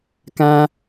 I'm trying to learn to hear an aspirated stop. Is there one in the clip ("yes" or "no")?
no